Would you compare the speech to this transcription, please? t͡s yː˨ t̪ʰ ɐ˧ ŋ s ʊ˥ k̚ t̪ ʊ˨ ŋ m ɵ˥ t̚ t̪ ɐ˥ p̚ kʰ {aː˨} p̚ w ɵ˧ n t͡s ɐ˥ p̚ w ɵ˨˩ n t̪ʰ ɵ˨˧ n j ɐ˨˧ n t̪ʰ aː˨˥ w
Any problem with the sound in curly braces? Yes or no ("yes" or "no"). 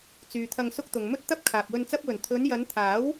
no